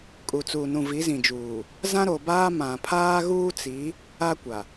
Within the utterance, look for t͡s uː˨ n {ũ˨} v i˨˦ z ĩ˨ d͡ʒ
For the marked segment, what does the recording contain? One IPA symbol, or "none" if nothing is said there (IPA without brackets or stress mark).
ũ˨